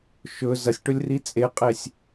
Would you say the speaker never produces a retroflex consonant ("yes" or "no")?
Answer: no